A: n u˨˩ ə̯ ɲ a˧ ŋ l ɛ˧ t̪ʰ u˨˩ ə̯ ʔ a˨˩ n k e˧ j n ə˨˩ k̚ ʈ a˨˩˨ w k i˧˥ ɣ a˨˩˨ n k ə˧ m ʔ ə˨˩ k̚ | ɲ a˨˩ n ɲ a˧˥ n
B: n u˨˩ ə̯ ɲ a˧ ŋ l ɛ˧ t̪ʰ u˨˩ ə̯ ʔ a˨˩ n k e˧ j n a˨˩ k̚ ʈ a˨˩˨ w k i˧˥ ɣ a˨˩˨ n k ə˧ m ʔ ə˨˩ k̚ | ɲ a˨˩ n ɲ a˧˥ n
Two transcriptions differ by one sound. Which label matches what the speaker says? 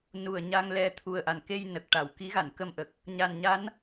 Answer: A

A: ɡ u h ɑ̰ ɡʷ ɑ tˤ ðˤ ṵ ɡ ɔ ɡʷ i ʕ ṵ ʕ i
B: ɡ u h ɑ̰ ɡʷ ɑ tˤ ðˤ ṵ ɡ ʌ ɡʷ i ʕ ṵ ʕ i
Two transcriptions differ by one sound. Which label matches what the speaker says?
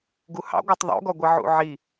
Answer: A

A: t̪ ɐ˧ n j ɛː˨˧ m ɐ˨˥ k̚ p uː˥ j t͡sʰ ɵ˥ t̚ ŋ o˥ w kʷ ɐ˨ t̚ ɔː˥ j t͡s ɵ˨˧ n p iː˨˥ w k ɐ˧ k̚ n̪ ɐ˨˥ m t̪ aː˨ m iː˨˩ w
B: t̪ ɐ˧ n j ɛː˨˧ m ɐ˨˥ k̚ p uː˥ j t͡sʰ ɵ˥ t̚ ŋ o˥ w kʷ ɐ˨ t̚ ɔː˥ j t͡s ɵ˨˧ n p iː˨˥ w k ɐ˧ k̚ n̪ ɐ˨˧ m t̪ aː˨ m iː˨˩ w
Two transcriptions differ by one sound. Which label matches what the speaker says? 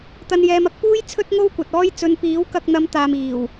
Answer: B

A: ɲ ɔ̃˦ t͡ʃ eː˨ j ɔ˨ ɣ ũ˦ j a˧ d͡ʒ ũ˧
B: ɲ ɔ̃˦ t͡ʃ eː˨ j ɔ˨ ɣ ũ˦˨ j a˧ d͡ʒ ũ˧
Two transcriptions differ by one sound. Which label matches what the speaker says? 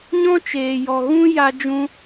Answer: A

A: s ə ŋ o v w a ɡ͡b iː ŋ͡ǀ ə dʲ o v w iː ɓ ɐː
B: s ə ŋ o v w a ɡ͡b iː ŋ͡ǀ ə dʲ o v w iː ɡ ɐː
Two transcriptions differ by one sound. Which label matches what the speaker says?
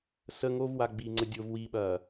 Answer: A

